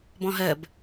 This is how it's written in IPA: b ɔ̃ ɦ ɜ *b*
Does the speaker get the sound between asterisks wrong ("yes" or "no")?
no